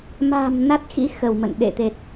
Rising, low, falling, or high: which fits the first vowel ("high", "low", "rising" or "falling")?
low